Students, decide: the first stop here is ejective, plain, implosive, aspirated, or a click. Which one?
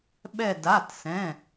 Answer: implosive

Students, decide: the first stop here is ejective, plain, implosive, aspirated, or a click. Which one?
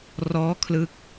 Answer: aspirated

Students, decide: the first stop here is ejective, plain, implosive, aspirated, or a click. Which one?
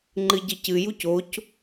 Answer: click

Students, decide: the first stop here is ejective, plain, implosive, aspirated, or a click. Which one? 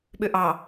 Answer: implosive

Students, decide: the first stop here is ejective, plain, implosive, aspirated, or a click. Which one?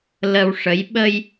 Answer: implosive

